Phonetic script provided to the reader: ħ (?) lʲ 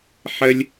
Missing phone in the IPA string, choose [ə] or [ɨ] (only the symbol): ə